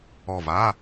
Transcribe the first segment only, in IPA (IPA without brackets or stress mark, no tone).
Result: ɔ